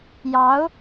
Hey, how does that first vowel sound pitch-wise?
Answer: rising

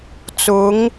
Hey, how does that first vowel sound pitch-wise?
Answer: rising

